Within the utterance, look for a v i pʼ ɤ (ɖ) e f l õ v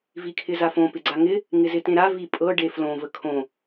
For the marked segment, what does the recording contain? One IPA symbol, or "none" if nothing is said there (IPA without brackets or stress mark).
ɖ